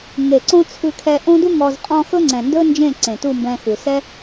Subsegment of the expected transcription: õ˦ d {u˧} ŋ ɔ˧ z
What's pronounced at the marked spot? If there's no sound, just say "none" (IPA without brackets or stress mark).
u˦